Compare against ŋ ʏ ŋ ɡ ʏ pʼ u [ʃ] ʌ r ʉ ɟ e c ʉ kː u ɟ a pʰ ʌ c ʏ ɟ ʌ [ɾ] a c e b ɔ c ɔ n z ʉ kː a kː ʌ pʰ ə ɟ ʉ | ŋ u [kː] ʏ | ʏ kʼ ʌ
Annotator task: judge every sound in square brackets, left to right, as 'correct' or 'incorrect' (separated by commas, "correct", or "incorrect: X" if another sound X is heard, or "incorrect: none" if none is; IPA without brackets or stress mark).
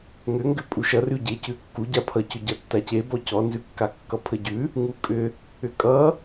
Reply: correct, incorrect: tː, incorrect: kʼ